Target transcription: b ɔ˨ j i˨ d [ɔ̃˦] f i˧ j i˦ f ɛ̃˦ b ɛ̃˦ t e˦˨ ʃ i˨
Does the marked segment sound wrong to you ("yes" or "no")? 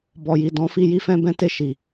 yes